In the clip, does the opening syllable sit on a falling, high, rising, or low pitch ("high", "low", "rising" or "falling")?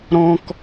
high